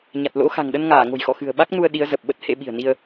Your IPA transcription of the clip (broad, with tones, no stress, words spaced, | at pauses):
ɲa˨˩t̚lo̰˧˥ xa̤˨˩ŋɗə˧nŋaː˧˩ ŋo̤˨˩jxɔ̰˧˨ xɨ̤˨˩ə̯ɓa˦˥k̚nu˧ə̯ ɗi˨˦ə̯zə˨˩p̚ ɓə˦˥t̚hḛ˧˥ɓi̤˨˩ə̯ni˧ə̯